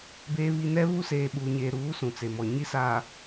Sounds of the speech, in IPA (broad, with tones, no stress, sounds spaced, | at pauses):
b eː˨ β i˨ n ɛ˦ β u˦ s eː˨ ɓ uː˨ ɲ eː˨ ɾ uː˨˦ s ũ˨ t͡s e˨ m ɔ˨ ɲ i˦ s aː˨